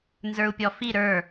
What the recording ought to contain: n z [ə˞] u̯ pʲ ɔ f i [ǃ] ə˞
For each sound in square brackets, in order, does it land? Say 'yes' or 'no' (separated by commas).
yes, no